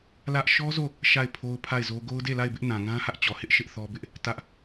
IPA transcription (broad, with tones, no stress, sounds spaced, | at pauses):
l ä˦ ʔ ʃ ɔ˦ z o˦˨ | ʃ a˦˨ ɪ̯ pʰ o˦ ʊ̯ pʰ a˦˨ ɪ̯ z o˦ ɡ o˦ ʊ̯ d e˦˨ l a˦˨ ɪ̯ b ɪ˦ ʔ n ã˨ ŋ ã˦ h ä˦ ʔ t͡ɕ ɔ˨ h ɪ˦ ʔ ʃ ɪ˦ ʔ θ ɔ˦ b ɪ˦ ʔ | t ä˦ ʔ